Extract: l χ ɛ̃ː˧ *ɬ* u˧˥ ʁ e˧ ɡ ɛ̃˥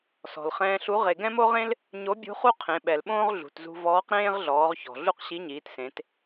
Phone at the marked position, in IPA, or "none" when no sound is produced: ɬ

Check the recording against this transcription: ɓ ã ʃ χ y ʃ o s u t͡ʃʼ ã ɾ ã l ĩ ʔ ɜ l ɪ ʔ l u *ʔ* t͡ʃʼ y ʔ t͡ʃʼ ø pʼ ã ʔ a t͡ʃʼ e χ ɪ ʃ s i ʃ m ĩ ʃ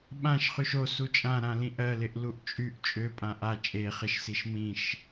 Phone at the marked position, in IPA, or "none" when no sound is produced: ʔ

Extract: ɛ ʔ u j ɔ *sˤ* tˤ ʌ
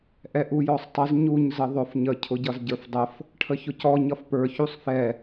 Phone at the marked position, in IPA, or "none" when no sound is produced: sˤ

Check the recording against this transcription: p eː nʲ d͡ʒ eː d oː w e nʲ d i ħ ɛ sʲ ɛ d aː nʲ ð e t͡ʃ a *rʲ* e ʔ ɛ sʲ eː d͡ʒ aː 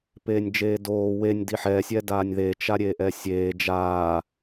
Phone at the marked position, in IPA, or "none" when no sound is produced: ɾʲ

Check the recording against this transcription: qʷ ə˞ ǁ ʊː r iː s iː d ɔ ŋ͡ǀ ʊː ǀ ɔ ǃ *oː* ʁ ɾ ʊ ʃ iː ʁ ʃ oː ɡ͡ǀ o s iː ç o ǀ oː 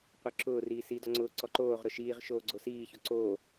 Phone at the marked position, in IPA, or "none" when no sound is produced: oː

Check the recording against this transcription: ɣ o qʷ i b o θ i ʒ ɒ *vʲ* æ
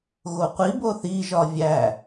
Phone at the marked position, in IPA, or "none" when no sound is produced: vʲ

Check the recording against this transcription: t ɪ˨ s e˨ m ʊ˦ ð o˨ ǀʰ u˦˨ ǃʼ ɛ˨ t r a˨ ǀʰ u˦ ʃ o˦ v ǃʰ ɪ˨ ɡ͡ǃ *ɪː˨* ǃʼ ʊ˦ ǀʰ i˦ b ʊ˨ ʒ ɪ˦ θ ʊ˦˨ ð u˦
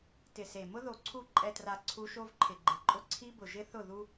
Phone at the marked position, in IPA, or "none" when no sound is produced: ɪ˨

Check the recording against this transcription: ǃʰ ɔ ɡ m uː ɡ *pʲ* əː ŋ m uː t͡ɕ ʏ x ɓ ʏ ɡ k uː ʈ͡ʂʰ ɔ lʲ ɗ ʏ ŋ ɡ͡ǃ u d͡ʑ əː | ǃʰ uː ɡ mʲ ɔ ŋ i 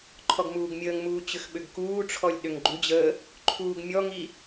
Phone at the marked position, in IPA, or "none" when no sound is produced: mʲ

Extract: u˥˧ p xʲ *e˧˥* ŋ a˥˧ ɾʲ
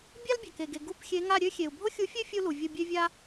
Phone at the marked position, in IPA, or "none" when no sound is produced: e˧˥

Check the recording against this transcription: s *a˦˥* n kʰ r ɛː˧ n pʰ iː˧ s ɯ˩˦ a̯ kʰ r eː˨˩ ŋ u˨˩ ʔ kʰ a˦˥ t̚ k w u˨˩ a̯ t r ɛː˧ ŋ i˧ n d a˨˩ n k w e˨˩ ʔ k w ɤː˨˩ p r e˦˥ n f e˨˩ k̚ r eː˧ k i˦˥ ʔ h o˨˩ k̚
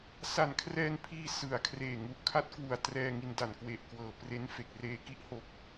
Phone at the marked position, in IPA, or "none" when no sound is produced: a˨˩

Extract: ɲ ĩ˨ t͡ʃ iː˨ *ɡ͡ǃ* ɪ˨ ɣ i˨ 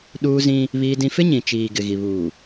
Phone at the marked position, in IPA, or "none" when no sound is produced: ɡ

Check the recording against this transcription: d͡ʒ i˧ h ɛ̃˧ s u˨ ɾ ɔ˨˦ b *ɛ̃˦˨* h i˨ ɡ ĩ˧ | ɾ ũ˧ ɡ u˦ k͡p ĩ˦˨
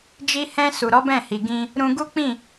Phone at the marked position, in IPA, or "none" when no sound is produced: ɛ̃˦˨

